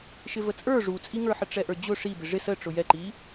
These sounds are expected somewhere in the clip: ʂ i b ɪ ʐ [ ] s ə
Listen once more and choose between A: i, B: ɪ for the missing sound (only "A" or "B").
B